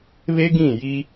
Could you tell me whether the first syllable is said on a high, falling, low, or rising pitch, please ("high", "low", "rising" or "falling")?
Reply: high